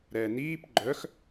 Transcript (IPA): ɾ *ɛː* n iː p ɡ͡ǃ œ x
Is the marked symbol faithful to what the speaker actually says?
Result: yes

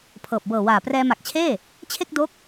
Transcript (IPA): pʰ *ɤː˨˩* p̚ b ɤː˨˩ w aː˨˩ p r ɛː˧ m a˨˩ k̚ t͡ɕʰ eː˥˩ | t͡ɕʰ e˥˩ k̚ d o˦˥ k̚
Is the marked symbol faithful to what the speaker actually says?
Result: yes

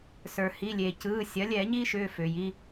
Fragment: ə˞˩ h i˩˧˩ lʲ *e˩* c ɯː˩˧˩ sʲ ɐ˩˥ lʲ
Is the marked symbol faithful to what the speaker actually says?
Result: yes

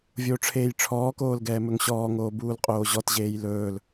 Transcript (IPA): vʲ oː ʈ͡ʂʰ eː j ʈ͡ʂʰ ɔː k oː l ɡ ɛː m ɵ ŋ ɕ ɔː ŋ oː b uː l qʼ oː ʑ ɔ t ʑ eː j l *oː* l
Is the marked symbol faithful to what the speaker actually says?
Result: no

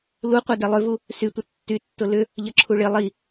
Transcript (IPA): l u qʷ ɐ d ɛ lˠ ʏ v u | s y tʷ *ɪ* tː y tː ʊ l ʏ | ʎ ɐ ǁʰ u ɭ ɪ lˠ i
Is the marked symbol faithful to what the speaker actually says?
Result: yes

